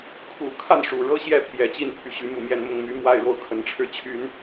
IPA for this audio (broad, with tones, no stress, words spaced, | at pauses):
kʰu˨˩kʰa˥˩n ʂu˨˩ ɻɤ˥˧ ɕjɛ˥˩ pʰjɛ˨˩t͡ɕi˥˩npʰy˧˥ ɕy˧˥mu˨˩ mjɛ˥˧n mʊ˥˩ŋmy˧˥ mwa˥˧ɪ̯ɻo˥˩ʊ̯ kʰə˧˥nʈ͡ʂʰɻ̩˥˩t͡ɕʰy˥n